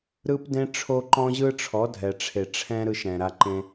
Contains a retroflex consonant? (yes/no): yes